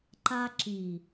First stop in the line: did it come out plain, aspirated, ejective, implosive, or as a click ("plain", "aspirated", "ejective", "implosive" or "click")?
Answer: click